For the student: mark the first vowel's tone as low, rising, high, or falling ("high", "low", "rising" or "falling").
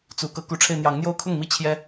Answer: rising